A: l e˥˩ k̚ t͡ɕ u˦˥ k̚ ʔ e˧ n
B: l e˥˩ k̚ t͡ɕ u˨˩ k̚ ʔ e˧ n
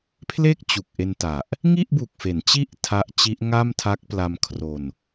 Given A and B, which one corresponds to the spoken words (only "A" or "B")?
B